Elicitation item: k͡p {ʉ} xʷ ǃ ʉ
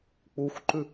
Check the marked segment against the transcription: incorrect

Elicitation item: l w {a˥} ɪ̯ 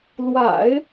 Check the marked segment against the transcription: incorrect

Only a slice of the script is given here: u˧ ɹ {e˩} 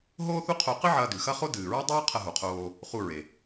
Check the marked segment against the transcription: correct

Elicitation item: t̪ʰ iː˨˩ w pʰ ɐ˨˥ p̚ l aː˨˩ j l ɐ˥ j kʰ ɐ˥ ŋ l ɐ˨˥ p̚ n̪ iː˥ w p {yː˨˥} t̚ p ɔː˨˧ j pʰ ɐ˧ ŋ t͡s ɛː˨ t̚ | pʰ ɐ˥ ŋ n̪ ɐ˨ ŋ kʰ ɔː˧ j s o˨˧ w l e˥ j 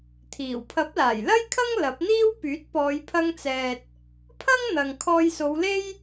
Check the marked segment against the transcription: correct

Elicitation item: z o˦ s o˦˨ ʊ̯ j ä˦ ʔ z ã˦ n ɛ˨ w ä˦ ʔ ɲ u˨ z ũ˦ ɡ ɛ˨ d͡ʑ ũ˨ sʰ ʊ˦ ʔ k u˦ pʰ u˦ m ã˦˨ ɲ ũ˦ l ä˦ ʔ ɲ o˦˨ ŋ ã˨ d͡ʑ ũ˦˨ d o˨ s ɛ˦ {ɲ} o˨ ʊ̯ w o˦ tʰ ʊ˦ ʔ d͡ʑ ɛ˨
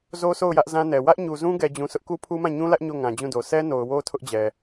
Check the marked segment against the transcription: incorrect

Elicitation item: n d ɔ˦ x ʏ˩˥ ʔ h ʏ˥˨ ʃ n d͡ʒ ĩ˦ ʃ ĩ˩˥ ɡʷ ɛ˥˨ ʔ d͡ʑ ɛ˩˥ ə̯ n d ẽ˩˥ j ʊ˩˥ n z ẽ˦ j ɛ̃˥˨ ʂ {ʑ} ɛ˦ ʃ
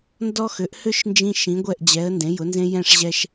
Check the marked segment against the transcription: correct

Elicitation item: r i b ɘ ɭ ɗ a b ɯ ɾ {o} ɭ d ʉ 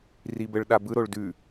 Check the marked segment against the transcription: correct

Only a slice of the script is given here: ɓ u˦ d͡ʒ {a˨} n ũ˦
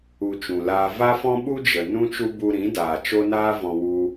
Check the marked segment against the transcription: incorrect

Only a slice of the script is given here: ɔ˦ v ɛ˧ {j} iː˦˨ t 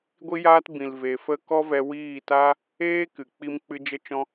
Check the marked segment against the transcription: incorrect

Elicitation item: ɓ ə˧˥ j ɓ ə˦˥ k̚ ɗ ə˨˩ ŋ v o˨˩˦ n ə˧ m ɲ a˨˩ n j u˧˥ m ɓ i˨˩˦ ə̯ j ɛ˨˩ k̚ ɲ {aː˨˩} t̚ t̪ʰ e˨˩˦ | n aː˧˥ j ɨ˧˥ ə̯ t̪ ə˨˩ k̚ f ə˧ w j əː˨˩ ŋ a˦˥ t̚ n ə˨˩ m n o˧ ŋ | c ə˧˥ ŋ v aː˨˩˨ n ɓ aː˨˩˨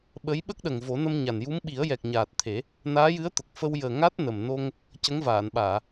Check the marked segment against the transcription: correct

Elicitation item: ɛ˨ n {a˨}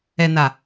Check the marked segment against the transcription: correct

